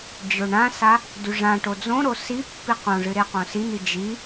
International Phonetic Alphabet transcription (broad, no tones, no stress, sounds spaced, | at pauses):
d͡ʑ ɵ ɳ ã s a | d ʉ ʐ ã ʈ o d͡z õ ɾ o s i pː i q õ ʐ ɨ ɾ e q õ s i n̪ i d͡ʒ i